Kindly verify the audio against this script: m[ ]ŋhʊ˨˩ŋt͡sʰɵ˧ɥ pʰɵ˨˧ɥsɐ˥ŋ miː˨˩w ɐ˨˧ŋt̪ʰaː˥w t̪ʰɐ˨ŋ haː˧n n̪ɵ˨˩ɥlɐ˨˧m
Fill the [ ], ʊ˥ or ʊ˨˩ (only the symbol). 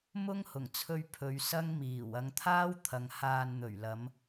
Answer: ʊ˥